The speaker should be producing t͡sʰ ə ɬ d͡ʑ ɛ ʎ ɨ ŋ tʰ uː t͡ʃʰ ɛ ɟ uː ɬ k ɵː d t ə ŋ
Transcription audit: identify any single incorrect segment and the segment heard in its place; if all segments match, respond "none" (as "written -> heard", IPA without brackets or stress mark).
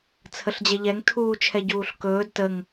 ɨ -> ɛ